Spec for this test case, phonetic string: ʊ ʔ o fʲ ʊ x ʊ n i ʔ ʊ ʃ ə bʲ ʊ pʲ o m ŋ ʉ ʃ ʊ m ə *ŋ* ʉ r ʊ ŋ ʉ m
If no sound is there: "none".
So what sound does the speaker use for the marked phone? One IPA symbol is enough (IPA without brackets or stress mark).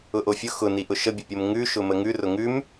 ŋ